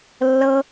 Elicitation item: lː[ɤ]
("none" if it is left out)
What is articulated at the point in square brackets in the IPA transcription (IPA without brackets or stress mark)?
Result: ɤ